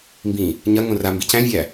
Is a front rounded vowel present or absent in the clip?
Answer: absent